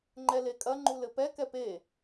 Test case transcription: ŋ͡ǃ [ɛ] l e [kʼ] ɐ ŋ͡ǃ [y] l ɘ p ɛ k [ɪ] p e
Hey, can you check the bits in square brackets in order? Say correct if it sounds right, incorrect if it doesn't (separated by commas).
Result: correct, correct, incorrect, incorrect